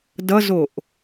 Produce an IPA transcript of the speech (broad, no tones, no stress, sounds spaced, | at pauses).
d ʌ z o ʔ